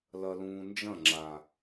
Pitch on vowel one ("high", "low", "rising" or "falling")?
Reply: low